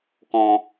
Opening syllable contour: low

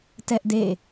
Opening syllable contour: high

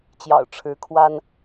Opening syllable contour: low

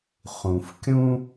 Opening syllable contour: low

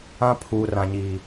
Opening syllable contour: high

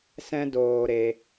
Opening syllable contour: high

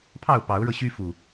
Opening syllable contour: falling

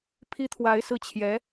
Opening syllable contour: high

